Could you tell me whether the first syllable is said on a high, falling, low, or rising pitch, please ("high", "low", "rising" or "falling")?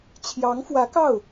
rising